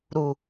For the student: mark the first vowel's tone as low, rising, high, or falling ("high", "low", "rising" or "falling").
low